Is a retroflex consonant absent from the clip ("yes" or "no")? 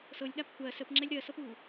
yes